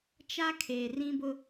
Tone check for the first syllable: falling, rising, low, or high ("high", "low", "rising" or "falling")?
high